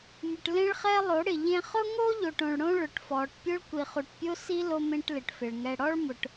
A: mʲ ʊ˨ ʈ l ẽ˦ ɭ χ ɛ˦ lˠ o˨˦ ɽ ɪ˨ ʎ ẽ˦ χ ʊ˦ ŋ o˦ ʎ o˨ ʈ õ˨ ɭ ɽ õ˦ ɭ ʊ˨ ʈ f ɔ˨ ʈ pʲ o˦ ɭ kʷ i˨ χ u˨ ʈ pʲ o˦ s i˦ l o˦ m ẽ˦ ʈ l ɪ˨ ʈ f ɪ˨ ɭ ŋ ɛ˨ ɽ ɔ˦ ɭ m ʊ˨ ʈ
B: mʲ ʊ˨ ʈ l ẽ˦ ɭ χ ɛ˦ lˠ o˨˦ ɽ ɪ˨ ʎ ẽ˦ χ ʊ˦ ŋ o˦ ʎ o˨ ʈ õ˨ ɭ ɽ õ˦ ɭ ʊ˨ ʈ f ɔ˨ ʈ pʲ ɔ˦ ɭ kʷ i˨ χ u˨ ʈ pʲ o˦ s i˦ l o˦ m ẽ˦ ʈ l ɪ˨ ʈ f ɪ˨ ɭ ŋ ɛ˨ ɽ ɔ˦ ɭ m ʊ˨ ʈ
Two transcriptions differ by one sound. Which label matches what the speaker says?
A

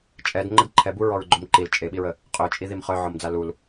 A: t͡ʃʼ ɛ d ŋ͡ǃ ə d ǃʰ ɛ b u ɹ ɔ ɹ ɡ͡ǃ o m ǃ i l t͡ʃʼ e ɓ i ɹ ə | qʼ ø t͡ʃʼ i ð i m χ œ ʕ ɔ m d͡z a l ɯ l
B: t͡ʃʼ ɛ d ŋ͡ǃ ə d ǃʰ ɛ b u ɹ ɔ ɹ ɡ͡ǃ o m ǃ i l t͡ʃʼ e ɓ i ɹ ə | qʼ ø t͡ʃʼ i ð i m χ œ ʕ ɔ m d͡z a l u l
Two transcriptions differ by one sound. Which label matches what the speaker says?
B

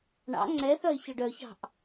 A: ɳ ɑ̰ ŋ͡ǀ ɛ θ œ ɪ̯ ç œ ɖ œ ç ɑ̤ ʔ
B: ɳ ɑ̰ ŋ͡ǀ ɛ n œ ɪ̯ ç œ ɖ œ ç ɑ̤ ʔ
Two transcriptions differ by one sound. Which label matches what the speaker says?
A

